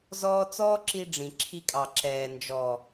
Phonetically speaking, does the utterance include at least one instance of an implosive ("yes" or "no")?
no